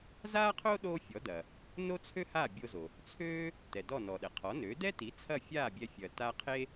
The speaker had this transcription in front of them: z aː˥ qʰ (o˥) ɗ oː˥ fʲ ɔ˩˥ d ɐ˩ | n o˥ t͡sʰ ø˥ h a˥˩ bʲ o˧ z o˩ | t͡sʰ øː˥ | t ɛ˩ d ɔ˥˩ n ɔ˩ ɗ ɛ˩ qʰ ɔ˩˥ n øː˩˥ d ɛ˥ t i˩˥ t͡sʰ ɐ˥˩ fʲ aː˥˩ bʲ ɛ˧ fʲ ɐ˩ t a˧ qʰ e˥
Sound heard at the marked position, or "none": o˥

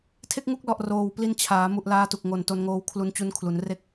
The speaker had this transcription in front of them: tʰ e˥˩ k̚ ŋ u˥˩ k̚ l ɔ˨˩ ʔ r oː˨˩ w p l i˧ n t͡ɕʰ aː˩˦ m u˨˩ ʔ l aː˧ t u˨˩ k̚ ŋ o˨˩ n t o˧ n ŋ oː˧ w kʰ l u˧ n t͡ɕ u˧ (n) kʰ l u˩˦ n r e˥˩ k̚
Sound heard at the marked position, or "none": n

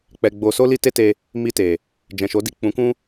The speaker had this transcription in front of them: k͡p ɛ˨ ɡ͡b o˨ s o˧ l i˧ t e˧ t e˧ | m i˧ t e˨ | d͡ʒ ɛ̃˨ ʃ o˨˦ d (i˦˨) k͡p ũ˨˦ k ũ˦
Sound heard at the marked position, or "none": i˦˨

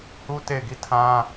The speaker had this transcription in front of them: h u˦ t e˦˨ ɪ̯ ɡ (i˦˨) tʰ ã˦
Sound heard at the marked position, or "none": i˦˨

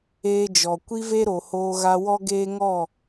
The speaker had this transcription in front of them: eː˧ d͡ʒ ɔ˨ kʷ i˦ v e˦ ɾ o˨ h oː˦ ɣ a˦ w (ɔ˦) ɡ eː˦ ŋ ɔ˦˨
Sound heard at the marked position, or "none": ɔ˦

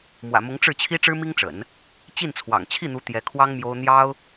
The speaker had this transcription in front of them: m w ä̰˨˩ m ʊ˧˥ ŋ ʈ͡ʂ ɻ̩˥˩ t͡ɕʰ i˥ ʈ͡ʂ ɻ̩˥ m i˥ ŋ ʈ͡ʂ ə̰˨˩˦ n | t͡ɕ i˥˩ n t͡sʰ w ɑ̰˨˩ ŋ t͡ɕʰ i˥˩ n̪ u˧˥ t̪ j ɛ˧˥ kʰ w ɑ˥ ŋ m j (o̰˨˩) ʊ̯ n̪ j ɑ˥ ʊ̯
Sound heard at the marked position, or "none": o˥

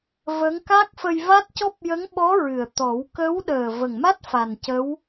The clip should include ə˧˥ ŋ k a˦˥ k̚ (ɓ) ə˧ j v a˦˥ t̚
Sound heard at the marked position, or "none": f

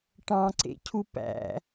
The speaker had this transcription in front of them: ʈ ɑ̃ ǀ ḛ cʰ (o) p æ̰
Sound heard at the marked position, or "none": u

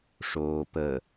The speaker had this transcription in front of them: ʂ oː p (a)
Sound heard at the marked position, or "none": ə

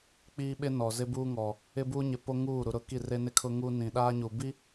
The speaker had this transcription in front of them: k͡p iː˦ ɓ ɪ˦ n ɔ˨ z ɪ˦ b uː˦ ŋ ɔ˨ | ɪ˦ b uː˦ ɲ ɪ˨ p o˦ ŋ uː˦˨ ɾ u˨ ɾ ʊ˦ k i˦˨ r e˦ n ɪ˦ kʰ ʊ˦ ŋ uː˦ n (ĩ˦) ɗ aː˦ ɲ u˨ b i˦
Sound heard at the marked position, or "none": ĩ˨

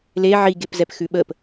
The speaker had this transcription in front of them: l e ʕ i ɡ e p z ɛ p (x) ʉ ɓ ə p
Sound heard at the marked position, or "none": x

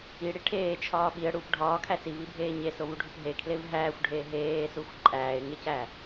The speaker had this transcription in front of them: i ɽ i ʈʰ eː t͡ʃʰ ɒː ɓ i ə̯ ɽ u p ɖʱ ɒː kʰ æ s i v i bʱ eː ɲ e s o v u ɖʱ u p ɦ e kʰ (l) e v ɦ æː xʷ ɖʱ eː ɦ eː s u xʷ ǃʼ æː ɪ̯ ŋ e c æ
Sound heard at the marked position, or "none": l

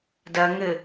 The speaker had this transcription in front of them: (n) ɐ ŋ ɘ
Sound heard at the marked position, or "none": d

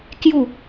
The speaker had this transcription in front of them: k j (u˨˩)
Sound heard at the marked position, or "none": u˥˧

